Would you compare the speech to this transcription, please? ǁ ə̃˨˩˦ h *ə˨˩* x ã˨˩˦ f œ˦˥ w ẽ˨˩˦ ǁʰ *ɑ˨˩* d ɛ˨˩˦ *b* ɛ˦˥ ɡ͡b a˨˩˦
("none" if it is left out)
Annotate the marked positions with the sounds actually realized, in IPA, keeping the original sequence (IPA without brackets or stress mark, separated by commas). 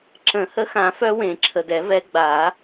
ə˦˥, ə˨˩, v